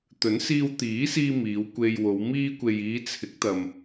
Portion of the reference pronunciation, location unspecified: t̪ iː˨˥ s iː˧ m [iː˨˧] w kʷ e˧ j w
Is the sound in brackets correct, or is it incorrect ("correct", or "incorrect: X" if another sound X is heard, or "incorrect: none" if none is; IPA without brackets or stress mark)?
correct